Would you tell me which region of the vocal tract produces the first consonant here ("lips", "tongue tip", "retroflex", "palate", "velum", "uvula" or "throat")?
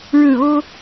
retroflex